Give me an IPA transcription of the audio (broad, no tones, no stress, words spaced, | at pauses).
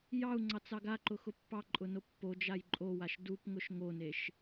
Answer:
jɑu̯ŋ͡ǀɑt͡sɑɡ aǃʊxʊ pːɑǃʼʊno pːod͡ʒaj ǃʼowaʃ dupŋʊʃ ŋoneʃ